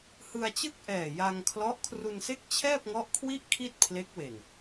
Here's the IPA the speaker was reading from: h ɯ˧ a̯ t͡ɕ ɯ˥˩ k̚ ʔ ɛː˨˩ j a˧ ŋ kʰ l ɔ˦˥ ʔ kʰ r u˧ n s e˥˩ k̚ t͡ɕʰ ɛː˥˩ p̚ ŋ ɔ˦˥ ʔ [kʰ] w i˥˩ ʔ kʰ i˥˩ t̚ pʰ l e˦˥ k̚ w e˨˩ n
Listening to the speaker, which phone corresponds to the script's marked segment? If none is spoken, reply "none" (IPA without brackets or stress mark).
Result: kʰ